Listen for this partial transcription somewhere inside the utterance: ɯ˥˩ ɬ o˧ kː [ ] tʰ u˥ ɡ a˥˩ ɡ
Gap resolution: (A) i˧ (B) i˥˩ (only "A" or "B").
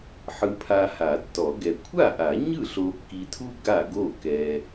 A